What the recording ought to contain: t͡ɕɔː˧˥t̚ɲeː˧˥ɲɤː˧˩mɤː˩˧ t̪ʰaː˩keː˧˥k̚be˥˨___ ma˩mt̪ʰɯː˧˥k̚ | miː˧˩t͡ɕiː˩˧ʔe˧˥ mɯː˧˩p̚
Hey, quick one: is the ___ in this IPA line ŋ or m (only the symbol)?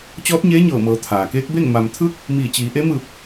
ŋ